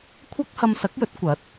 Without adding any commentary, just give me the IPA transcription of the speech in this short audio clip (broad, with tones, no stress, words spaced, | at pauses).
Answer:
kʷʰɐ˥k̚ hɐ˧msɐ˨˥k̚jɵ˨˥t̚ kʷɐ˨˥t̚